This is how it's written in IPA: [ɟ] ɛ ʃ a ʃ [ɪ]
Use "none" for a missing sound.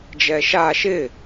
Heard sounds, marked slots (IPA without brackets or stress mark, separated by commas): d͡ʒ, ɪ